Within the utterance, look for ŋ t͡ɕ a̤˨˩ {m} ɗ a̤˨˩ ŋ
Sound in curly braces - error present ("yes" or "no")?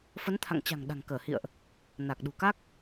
yes